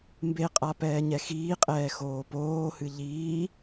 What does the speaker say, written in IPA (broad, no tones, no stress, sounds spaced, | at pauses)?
m b e qʼ a p ɛː ɲ ɛ x iː qʼ ɛː x oː p oː h ɨ ʎ iː